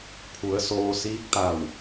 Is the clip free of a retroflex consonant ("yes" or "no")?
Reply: yes